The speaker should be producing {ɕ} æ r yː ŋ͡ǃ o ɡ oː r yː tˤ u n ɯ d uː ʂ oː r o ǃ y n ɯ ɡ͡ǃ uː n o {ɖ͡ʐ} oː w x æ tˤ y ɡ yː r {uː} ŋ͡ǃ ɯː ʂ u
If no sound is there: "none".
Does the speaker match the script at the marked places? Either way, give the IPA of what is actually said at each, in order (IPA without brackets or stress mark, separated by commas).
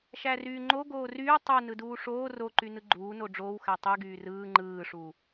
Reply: ʃ, ɖ͡ʐ, ɯː